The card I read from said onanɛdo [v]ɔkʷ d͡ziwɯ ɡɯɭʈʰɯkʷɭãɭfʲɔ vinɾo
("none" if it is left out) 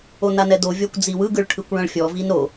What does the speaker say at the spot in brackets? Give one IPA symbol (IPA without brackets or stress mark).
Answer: vʲ